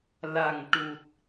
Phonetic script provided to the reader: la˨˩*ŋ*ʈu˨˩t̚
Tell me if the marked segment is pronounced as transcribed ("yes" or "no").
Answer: yes